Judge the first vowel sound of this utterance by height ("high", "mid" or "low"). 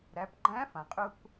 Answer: low